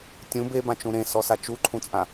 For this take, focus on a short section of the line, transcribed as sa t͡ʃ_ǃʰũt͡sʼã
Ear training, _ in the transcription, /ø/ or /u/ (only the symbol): u